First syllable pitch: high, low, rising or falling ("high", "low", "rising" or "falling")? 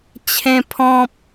high